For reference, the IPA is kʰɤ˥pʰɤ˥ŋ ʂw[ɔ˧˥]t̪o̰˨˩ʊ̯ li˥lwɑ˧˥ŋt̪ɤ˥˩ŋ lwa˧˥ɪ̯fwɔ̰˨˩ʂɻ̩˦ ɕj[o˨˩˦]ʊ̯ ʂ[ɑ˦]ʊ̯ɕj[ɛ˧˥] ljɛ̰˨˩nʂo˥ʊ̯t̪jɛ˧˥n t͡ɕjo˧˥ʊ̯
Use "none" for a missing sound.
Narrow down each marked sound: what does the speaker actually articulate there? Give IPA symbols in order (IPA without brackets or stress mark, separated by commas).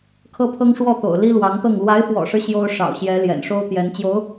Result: ɔ˥˩, o˥, ɑ̰˨˩, ɛ˧˥